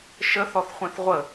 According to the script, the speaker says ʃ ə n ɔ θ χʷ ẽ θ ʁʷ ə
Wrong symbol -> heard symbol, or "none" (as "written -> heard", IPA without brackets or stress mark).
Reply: n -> θ